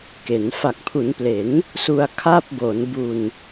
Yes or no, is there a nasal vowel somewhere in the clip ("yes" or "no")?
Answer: no